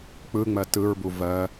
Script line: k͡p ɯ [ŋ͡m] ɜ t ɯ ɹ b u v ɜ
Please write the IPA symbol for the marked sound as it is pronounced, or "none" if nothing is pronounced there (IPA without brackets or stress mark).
ŋ͡m